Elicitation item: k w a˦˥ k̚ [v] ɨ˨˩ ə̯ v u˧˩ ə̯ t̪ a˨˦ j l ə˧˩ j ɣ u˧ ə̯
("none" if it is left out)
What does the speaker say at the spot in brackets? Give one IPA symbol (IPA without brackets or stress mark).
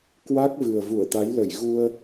v